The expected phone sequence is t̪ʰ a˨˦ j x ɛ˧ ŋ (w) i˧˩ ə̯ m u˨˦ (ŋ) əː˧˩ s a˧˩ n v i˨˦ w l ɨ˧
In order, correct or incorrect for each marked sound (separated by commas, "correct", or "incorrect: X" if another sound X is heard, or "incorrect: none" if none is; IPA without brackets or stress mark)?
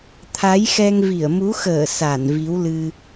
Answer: incorrect: v, incorrect: x